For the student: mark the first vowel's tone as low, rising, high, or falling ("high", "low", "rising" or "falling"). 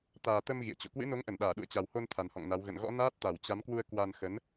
low